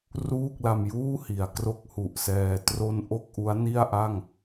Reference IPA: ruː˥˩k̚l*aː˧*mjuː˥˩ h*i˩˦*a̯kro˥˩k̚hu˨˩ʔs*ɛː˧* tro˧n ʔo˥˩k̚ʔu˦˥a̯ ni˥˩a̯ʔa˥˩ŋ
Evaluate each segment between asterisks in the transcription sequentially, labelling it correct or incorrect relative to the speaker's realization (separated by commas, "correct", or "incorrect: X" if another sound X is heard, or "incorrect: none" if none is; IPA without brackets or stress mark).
incorrect: a˧, correct, correct